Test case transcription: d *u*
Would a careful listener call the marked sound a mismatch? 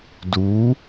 no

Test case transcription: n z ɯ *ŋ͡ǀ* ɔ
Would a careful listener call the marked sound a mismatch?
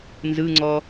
no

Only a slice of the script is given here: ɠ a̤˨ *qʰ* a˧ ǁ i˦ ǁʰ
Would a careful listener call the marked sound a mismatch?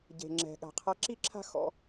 no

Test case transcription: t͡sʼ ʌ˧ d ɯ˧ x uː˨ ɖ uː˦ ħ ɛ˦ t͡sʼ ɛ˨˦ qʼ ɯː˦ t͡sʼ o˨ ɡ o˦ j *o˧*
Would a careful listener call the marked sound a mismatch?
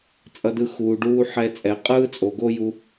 yes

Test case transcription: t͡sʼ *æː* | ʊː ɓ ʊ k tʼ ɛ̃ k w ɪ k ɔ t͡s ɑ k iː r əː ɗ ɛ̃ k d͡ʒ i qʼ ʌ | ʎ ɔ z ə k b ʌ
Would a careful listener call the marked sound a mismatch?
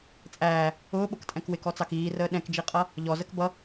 no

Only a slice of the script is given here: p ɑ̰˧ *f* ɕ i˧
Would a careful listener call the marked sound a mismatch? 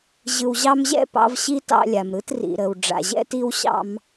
yes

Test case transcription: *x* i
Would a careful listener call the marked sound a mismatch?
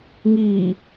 yes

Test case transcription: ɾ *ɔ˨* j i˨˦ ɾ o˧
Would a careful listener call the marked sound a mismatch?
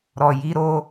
no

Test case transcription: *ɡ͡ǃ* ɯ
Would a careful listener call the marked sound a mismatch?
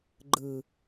no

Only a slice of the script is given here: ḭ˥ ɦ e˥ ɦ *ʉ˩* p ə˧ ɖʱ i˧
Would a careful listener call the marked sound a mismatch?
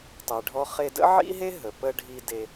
yes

